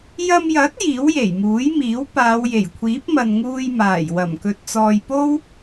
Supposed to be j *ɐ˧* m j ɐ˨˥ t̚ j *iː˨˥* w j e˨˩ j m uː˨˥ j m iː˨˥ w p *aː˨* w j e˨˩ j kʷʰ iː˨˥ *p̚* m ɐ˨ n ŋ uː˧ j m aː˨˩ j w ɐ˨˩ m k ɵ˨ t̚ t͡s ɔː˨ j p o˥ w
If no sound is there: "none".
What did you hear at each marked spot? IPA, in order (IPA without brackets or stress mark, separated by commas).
ɐ˧, iː˨˥, aː˨˧, p̚